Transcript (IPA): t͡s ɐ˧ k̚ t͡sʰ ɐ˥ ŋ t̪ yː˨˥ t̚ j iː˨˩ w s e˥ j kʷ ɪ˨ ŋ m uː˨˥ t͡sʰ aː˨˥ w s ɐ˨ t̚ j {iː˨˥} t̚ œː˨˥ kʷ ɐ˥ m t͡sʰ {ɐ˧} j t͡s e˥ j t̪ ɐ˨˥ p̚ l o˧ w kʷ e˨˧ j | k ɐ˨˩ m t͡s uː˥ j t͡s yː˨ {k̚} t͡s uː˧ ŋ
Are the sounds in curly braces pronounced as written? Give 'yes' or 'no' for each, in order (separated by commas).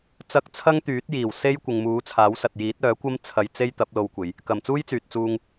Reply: yes, yes, no